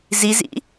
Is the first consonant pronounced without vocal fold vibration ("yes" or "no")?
no